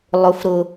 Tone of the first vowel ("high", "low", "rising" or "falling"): low